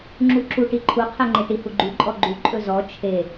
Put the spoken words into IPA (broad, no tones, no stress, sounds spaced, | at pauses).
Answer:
ŋ͡ǁ u ǁ u ʈ i ǃʰ u qʰ ɛ ŋ͡ǃ e ʈ i h u ɡ͡ǃ y ǃʼ ɔ ɡ͡ǃ u ǃʼ ɵ z ɔ t͡ʃʰ e